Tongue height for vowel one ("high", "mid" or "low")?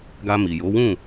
low